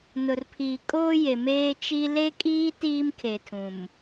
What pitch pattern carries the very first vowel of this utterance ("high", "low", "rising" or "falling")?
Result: low